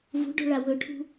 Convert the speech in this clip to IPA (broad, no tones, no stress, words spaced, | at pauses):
vṳɖo̤ɭa wɵʈʰṳ